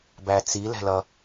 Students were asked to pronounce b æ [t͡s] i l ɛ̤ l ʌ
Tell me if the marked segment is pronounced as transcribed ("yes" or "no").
yes